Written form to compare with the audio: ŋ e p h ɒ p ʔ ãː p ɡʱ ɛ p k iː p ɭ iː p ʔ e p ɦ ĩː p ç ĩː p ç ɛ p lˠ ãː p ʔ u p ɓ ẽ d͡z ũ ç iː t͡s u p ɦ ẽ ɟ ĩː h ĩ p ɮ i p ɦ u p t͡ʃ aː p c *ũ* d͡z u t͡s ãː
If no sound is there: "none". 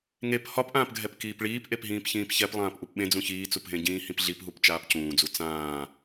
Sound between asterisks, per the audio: ũː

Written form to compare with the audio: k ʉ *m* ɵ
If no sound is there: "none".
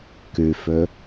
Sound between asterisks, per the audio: f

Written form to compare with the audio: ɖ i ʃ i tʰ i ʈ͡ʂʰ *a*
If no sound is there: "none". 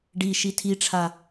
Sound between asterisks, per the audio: a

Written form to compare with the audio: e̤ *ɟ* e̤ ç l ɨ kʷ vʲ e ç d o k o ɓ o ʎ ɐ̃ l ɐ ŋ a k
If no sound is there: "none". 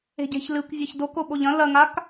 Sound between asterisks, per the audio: ɟ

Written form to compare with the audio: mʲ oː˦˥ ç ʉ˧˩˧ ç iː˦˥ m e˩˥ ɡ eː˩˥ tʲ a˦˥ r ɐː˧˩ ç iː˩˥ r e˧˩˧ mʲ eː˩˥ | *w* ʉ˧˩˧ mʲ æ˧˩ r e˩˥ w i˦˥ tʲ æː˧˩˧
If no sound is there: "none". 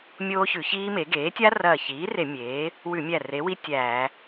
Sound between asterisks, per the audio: w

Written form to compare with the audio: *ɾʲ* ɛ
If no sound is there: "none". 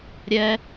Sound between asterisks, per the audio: ɾʲ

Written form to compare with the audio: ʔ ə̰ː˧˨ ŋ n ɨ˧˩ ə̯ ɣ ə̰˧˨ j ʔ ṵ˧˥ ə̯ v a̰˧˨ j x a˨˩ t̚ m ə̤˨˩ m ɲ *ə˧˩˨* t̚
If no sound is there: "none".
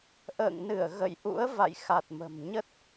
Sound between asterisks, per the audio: ə˦˥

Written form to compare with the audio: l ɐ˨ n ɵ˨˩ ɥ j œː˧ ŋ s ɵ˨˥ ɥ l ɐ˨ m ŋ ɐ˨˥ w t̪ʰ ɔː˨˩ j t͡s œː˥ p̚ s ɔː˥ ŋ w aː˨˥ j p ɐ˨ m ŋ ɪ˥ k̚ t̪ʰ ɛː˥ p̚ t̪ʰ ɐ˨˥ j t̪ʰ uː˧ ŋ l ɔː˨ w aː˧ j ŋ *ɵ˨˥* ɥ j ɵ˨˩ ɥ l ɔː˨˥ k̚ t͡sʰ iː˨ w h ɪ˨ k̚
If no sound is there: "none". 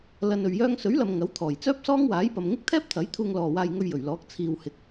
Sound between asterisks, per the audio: ɵ˧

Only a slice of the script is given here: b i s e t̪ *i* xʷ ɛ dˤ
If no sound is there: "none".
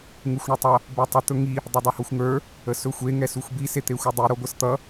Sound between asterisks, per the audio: e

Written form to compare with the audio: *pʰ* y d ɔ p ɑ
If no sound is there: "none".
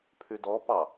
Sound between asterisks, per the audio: pʰ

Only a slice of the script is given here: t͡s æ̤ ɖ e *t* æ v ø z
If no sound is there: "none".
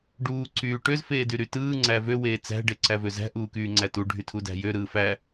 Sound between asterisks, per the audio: ǀ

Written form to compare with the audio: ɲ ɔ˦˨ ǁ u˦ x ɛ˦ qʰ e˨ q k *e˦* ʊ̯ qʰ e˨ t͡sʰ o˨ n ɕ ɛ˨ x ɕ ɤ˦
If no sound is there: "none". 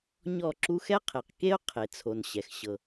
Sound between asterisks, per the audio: e˦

